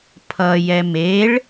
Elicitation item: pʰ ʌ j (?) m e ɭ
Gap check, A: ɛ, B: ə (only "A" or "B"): A